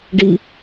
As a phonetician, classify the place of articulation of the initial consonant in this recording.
retroflex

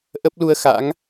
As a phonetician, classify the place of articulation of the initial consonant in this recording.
glottal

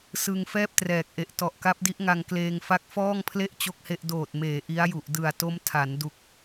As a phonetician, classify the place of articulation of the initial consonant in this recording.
alveolar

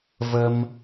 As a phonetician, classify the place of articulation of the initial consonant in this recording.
labial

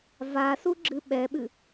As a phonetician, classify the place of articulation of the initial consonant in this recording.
labial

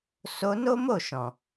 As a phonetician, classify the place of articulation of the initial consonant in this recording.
alveolar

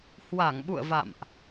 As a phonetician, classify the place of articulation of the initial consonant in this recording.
glottal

